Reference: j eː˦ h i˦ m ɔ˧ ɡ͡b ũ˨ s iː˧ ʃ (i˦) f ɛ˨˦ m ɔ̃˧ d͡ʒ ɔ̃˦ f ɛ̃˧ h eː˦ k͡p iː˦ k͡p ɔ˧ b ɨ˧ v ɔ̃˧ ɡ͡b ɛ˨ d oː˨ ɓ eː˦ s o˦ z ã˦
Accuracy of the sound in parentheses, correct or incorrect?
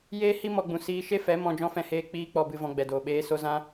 incorrect